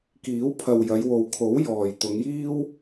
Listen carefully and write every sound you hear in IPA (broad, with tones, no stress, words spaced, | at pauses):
kiː˨˥wpʰɐ˨w jɐ˨˧jwo˨w kʰo˨˥wjɔː˨˩j t̪ʊ˨˧ŋjiː˥w